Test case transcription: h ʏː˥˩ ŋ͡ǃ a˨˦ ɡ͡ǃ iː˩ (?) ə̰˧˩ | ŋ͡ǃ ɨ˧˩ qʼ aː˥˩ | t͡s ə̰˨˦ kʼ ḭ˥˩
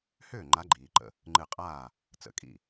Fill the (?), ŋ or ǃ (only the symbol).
ǃ